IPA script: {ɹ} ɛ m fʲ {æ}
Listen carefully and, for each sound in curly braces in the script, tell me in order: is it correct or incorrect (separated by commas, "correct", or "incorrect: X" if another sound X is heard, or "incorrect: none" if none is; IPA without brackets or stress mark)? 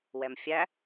incorrect: w, correct